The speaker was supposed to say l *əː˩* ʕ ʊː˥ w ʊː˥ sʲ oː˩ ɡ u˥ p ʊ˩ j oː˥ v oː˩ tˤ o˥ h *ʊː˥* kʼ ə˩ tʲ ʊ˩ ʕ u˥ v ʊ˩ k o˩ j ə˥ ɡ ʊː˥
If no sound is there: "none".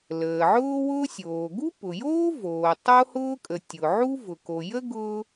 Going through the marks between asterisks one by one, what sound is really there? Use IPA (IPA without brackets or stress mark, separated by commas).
əː˩, ʊː˥